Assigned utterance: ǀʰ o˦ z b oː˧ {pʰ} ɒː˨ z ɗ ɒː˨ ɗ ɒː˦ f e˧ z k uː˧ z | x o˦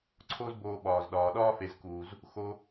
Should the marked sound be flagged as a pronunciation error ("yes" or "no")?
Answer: yes